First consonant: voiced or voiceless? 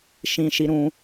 voiceless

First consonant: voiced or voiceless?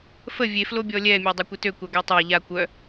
voiceless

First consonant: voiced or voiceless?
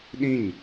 voiced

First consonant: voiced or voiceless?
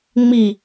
voiced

